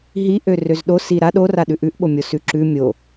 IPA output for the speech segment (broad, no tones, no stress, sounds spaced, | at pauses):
ɦ i ʔ ø r ø z ɗ o s i ɾ a ɗ o r a ɗ ʉ ʔ ʉ ʔ ɓ o mʲ o s ʉ ǁ ʉ mʲ o